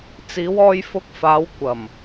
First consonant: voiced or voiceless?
voiceless